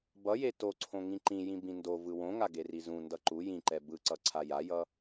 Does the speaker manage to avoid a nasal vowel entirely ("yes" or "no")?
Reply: no